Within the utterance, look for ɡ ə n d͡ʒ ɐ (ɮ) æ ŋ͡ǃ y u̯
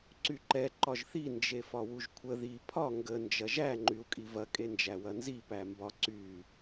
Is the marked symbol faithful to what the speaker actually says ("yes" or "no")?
no